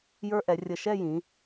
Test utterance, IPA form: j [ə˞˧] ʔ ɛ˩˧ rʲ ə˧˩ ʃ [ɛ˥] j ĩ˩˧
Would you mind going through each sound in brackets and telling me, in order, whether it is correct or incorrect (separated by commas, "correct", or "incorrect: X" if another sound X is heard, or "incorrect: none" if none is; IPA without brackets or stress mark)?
correct, incorrect: ɛ˥˧